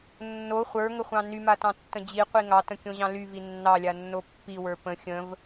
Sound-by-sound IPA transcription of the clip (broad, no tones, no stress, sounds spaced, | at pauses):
nː o χʷ ə˞ ŋ ə χʷ ɑ̃ n y m a t ɑ̃ tː ə̃ d͡ʑ i qʷ i ŋ ɑ t ə̃ kʲ õ ʑ ɑ̃ l y v i nː ɑ lʲ a nː o pː i w ə˞ p ə̃ xʲ ə̃ v